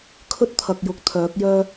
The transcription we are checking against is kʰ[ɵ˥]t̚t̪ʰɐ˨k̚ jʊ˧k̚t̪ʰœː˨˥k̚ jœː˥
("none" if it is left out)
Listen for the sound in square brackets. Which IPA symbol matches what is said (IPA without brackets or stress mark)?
ɵ˥